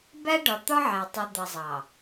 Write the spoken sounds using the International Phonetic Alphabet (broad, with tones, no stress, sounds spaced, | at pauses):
b æ˦ ɖ ɒ˨ t̪ ɒ˦ ʕ æ˨ tˤ u˨ d̪ ʌ˨ zˤ ɑ˨